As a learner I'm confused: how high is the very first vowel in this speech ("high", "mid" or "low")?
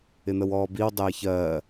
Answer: high